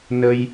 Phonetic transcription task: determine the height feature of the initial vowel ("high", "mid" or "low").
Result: mid